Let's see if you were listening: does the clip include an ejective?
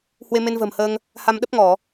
no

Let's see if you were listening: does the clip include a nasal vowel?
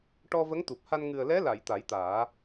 no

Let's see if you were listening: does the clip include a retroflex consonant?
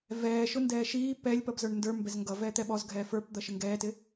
yes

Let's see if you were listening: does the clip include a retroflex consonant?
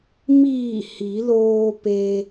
no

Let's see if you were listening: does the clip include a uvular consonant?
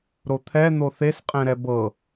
yes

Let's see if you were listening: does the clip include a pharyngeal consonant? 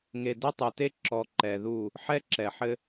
yes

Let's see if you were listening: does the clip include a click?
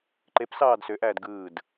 yes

